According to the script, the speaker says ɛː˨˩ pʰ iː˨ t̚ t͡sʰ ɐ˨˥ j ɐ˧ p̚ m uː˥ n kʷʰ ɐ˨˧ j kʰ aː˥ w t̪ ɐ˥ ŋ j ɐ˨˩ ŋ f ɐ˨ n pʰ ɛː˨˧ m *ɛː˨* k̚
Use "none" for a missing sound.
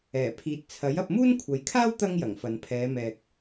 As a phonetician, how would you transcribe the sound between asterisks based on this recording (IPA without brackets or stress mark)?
ɛː˨